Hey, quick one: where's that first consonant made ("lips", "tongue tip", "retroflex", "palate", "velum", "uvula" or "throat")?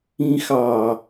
velum